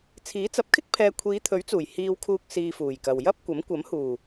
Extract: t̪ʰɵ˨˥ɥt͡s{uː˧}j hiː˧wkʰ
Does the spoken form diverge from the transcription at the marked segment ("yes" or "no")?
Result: yes